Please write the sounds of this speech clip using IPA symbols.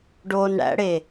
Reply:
ɖoːnɽæ̰ɽe

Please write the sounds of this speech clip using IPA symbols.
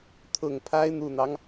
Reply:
t̪ʰʊ˨˩ŋpʰa˦ɪ̯ n̪u˨˩n̪ɑ˦ŋ

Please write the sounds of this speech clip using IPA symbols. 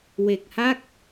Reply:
we˨˩k̚ha˥˩k̚

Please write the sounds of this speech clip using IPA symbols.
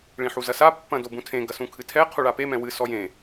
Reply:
ɭĩħuzɐsa pːɐ̃dobũtʰẽ ɡɐsũkʰɨtʰɛ qʰuɭape mɛ̃wɨ sɔjẽ

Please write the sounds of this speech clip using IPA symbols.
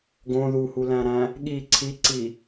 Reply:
ɡõ ðuhulæ̃ɾæ̃ | ɠi ǀʰiǀi

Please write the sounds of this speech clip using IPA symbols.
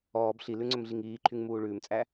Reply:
ɔːb ɬilʉŋ͡ǀɵmɮiŋ iːǃʰyŋ muːɭʉːmt͡sʼæ

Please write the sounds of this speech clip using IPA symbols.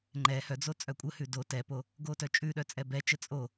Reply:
ŋ͡ǃɛ hœd͡zo t͡sʼœkʷʼəhʉ do tɛpo | ɡotœt͡ʃʼʉɗœ t͡sʼɛbɛt͡ʃə t͡sʼo

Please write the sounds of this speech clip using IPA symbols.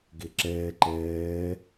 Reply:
ɡeǁɛː ǃɛː

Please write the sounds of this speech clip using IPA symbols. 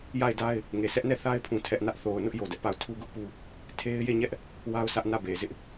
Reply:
ja˦˨ɪ̯da˦ɪ̯ | ŋe˨sʰɛ˦ʔnɛ˦˨ θa˦ɪ̯ pʰũ˦˨tʰɛ˦ʔnä˦ʔ θo˨ʊ̯nʊ˦ʔ jo˨dɛ˦ʔpa˦˨ʊ̯ tʰu˦ɡʊ˦ʔpu˦ | tʰe˦ɪ̯ je˦˨ɲɛ˦ʔ | wa˦ʊ̯sä˦ʔ nä˦˨be˨zɪ˦ʔ

